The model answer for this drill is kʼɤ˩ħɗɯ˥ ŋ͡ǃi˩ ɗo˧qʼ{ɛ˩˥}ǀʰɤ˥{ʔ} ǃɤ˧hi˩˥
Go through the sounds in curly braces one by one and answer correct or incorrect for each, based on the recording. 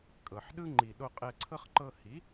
incorrect: ɛ˧, incorrect: χ

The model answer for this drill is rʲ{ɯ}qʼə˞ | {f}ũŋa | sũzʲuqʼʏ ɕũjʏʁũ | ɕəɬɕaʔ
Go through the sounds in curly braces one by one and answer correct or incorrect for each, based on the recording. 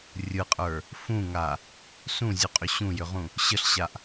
correct, correct

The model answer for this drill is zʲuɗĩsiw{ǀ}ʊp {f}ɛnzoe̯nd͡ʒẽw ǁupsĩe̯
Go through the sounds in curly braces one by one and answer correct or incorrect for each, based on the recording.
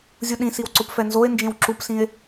correct, correct

